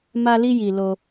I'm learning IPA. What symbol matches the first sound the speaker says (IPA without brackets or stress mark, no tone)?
m